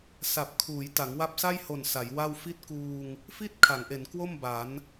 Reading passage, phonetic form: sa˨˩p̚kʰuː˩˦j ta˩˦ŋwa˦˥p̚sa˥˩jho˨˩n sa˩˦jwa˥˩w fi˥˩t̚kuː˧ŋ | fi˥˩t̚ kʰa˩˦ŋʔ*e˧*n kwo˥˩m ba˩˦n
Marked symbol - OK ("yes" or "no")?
no